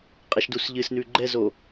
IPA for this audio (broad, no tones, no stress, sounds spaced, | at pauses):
qʼ ɛ ʃ d u s ʎ ɨ s n ʉ ɡ͡ǃ ɛ z o